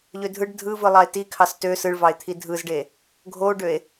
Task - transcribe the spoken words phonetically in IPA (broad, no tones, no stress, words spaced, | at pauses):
ʎødʱɯɖ dʱɯvɯlˠɑe̯ ti kʰɑstø sɯɭvɑe̯t̪ʰi dʱɯzɖe | ɡʱoɖøe̯